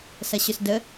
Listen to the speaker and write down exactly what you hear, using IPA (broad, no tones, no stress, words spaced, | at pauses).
sɐɕʏsdə